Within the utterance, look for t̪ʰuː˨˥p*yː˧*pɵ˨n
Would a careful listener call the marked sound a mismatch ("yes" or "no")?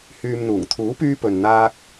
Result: no